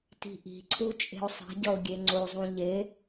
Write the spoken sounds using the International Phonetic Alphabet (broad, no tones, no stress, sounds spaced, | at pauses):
t i̤ ʔ i̤ ǀʰ u t͡ʃʼ e̤ ʊ̯ sˤ e̤ ɟ ʌ ʊ̯ ɡʲ e ŋ͡ǀ o zˤ ũ ʎ e